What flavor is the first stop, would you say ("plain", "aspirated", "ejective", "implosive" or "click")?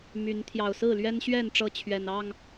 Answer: aspirated